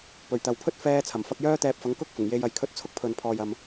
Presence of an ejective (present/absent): absent